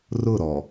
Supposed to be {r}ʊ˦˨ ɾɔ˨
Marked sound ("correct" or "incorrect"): correct